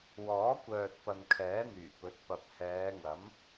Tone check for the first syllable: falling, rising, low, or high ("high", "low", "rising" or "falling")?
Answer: rising